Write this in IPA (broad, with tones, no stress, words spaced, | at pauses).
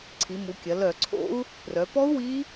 ǀʰi˩˧mu˩˧kʲɐ˩˧ lœ˧˩˧ǀʰo̰˦˥u̯ | prœ˩˧pɔ˦˥u̯ wi˦˥